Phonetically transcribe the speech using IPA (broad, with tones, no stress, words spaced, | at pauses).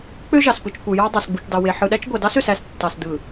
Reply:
k͡pø˦ʒɑ˨spɯ˨t͡ʃ kʷɯ˨jɑ˦ dˤæ˨sɡ͡bu˨t͡ʃdɑ˨we˨ ħɯ˨ɗæ˦t͡ʃ ɡʷæ˨dɑ˦sø˨s æ˦s tːɑ˨s dɯ˨